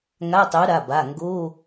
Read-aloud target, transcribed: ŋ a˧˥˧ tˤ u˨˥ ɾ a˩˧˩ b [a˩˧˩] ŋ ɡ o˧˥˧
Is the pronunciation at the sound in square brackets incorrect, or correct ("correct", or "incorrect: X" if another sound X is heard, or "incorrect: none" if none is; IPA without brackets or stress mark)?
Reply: correct